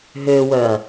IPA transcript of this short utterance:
ɦøwœɐ̯

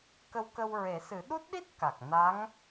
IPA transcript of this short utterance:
kə˧wkə˧w ɹe˨˩˦sɨ˨˩˦ ɗu˦˥t̚ɗi˦˥t̚ ka˨˩k̚ na˧˥ŋ

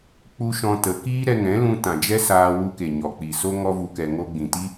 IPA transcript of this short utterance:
k͡pu˦ʃɔ̃˧tə˨˦ kiː˦ɾɛ˧ŋɛ̃˨˦ lũ˧tã˨d͡ʒɛ˦ saː˧wu˧ke˨ ɲɔ˨k͡pi˨so˦ ŋɔ˧vu˨kɛ˨ ŋo˧ɡ͡bĩ˨ti˦

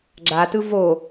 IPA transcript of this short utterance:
ɡ͡ǁatɯ vo

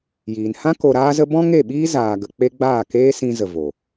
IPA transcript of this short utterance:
jiː˨n hã˦ ko˧ɾaː˦zə˦ bɔ̃˦ŋe˦˨ɓiː˦ zaː˧ɡə˧ k͡pe˦ ɡ͡baː˦˨keː˦sĩ˧zə˨ vo˨

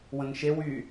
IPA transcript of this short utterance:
wə̃ŋʃew y

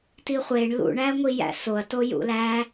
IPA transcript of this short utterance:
tiχʷeɳ lṵɳæŋʷi jæ̰soɐ̯to jṵlæ

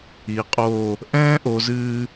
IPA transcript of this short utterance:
i˩˧qʼoː˧˩ | ʔɛ̃ː˥ʔo˩˧zɨː˧

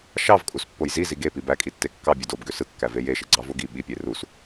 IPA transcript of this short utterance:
ʃɑvkʼuspːoj zizi ɡepi bækʼitːe kːɑbʲød obɡø sɯkːæve jeʃeɡ͡ǀɑvo ɡi ɓipʲe rus

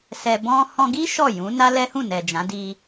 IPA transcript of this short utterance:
sɛ˧ bɔ̃˦ hɔ̃˧ɡi˦ ʃɔ˦˨jũ˨˦na˦ lɛ˦hũ˦˨ nɛ˨d͡ʒã˨˦ di˧

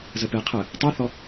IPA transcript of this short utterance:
zəpe qʰə | tˤɛθɔ

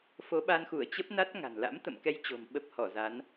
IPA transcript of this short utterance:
fo˨˦ɓa˧nxu˧˩ə̯ t͡ɕə˦˥p̚na˦˥t̚ ŋa̤˨˩n la̰˧˥mt̪ə̰˧˨mkɛ˧j t͡ɕo̤˨˩mɓə˦˥p̚ hɔ˧˩za˨˦n

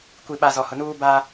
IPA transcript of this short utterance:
kʷi˨ɓa˨ zɔ˨hʊ˨nuː˦ ba˦

